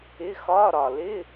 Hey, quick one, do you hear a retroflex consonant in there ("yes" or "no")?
no